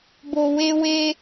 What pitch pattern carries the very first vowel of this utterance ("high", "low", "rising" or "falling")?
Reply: low